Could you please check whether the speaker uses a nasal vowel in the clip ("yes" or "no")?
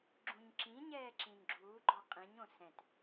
yes